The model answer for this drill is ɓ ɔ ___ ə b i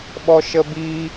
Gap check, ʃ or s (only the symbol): ʃ